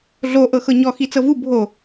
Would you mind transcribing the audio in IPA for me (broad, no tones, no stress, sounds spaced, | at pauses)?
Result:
ɮ o ʔ ɤ x ɤ ɲ ɔ x i t͡s ɤ v u bʱ o